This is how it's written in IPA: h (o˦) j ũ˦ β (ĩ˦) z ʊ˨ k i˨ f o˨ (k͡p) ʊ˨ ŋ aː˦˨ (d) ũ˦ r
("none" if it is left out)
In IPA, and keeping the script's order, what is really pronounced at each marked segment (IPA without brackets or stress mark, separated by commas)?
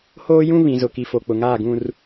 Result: oː˦, ĩ˨, k͡p, ɡ